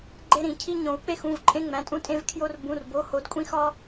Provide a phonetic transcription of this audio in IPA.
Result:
ɡ͡ǃ e˦ ɾ ĩ˨˩˦ cʰ i˦ ɲ õ˨˩˦ u̯ k͡p e˦ x ũ˩˧˩ v ǃʼ ẽ˦ ŋ͡m æ̃˩˧˩ tʼ ũ˦ tʼ ẽ˦ v kʰ j o˦ r b ũ˩˧˩ r b o˩˧˩ h o˨˩˦ d kʷʼ ĩ˦ x ɒ˦

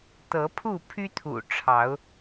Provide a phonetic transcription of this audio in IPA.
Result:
t̪ ɤ˨˦ pʰ u˥˨ pʰ y˦ t̪ʰ ṵ˨˩ ʈ͡ʂʰ ɑ˨˦ ʊ̯

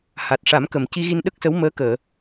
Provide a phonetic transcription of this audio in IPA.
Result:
h a˨˩ t̚ ʂ a˨˩˦ m k ə˨˩ m c i˧ ɣ i˧ n ɗ ə˦˥ k̚ s ə˧˥ w m əː˧˥ k əː˨˩˨

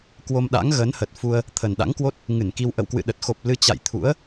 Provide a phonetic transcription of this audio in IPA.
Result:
k w o˧ m ɗ a̰˧˥ ŋ ɣ ə˨˦ n h ə˨˩ t̚ f u˧ ə̯ | t̪ʰ ə˨˩ n ɗ a̰˧˥ ŋ k w o˦˥ t̚ | ŋ ɨ˧˩ n k i˧ w ʔ ə̰˧˨ w k w ɨ̰˧˨ ɗ ə˨˩ t̚ x o˨˩ p̚ l ɨ˧ t͡ɕ a̰˧˨ j t̪ʰ ṵ˧˥ ə̯

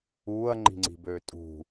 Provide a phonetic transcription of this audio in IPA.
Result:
uː ɐ̯ ŋ͡ǃ i̤ ŋ͡ǀ i̤ b øː tʼ ṳ

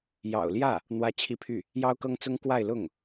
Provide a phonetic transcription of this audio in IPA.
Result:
j ɑ̰˨˩ ʊ̯ l j ä˥˩ | n̪ w ä˥ t͡ɕʰ i˥ pʰ y˥˩ | j ɑ˥ ʊ̯ k ɤ˥ ŋ t͡s ʊ˥ ŋ k w a˥˧ ɪ̯ l ʊ˥˩ ŋ

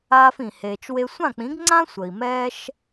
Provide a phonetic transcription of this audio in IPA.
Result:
aː˧ f ĩ˩ h eː˩ t͡ʃ w e˧ sʷ ã˥˩ k͡p ĩ˩˥ ɡ ŋ͡ǀ ã˥ sʷ ə˩ i̯ m ɛː˥ ʃ

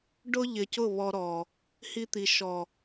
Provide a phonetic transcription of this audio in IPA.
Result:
ɖ ʊ˦ ʎ ɪ˨ c ʊ˦˨ β ɔ˦ ɾ ɔ˨ | h i˦ t̪ i˨ ʃ ɔ˨

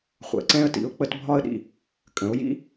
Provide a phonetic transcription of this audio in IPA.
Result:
χʷ ɛ̰˩ ǀ ɛ̃˥ ə̯ t ḭ˩˥ ʊ̯ k͡p ə˧ t bʱ ɒ˥ ə̯ ɗ ḭ˧ | kʼ ə̃˩˥ ʊ̯ j ḭ˥

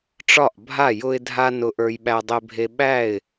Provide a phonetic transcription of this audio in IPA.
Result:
ʈ͡ʂ ɒ˥˩ ʔ bʱ a˥˩ j ʊ˧ ɪ̯ dʱ a˧ n ʊ˧ ʔ ə˞˧ j ɓ æ˧ dˤ e˧ bʱ e˧ ɓ æ˥˩ ɪ̯

